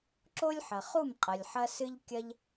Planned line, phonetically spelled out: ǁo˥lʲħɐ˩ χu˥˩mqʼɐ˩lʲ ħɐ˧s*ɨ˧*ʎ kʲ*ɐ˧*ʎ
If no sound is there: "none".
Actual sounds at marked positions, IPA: ɨ˧, ɐ˧

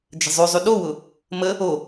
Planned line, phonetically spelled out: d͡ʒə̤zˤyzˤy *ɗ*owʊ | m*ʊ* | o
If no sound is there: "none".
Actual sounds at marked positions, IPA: ɗ, ə

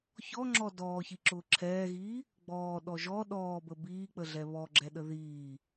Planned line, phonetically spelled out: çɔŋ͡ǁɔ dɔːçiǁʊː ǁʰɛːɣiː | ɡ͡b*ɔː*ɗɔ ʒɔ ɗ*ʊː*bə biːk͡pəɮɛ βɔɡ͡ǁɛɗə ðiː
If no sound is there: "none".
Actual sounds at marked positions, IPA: ɔː, ɔː

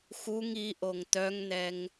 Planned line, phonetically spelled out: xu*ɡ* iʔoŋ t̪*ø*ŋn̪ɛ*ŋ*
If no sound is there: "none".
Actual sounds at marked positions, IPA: ŋ, œ, ŋ

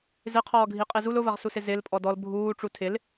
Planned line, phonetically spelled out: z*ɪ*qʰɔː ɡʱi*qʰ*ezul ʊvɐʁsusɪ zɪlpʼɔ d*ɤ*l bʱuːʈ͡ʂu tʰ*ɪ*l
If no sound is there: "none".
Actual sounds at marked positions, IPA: ɪ, qʼ, ɔ, ɪ

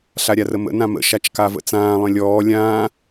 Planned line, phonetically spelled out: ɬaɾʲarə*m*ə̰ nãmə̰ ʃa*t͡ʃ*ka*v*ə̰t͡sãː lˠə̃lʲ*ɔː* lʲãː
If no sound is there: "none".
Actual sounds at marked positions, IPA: m, t͡ʃ, v, ɔː

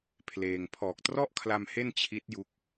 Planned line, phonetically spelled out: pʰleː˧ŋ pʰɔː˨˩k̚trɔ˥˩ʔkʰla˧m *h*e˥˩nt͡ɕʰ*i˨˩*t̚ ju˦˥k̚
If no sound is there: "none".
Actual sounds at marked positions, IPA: h, i˦˥

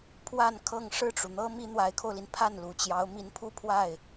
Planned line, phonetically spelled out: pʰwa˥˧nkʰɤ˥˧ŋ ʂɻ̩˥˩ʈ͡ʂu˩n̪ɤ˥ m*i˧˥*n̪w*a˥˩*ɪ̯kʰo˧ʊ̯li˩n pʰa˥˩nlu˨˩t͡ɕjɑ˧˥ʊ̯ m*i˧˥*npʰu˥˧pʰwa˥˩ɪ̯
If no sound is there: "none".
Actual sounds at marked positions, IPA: i˥, a˧˥, i˧˥

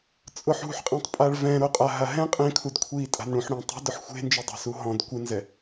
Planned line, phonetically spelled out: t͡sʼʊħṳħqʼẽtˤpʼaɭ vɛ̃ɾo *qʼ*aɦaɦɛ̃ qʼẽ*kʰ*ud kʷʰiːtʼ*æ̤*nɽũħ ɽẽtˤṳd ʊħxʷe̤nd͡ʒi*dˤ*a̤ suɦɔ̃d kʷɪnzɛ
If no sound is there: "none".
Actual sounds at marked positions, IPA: qʼ, kʰ, a̤, dˤ

